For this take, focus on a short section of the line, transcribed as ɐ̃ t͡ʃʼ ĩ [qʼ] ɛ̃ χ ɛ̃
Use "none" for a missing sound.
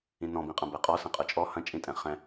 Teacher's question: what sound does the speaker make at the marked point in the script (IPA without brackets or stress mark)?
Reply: tʼ